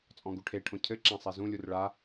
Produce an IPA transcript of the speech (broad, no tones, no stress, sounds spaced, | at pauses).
t͡sʼ ɔ̃ ɡ u ʈʰ e ʈʰ õ cʰ ɘ ǁ ã sˤ ɛ z ũ lʲ u r ɭ a